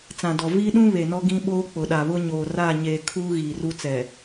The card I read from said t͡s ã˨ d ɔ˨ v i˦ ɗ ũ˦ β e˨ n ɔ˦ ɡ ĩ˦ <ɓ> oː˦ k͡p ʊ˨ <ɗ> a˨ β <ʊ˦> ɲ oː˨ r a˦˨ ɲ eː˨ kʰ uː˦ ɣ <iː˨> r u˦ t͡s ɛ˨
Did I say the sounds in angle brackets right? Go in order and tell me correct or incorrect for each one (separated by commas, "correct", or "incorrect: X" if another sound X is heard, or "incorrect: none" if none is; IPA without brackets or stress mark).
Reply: correct, correct, correct, correct